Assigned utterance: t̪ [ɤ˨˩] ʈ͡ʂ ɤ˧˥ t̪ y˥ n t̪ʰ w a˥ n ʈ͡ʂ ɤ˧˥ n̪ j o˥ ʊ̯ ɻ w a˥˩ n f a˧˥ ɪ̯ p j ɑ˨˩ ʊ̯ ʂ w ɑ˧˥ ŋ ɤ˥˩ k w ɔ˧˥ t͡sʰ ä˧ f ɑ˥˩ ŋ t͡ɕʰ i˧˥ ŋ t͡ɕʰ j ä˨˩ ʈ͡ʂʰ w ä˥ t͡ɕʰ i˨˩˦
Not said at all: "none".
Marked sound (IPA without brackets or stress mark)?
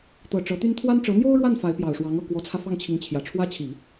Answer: ɤ˨˩